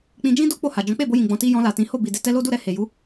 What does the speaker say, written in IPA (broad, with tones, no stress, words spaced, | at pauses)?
k͡pĩ˧ d͡ʒĩ˦do˦ k͡po˦˨ha˨ d͡ʒɔ̃˨˦k͡pe˦˨bo˧jĩ˨ ɡ͡bɔ̃˨ti˧ jɔ̃˧la˨ tĩ˨˦ho˦˨ bi˨de˧ tɛ˧lo˦du˦˨ɾɛ˧ he˨ ju˨˦